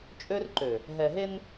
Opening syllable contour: high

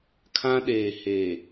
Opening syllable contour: high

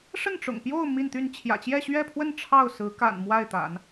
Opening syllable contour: falling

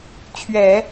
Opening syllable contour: low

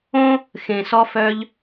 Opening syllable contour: high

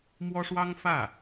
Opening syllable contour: high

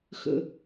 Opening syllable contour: low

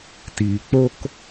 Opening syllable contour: low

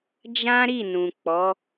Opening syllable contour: high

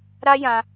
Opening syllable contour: high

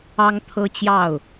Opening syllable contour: high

